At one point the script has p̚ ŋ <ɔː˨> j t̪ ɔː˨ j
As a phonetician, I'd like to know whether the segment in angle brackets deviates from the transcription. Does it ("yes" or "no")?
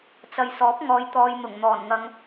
no